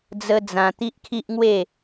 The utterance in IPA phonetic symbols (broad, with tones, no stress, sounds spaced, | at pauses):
d͡z ə˧ d͡z ã˧ t̪ i˦ ʔ kʰ i˦ ʔ ŋ w e˥˧